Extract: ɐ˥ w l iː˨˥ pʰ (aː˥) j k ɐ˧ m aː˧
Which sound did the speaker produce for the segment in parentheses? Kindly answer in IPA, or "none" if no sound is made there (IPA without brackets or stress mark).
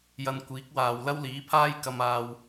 aː˥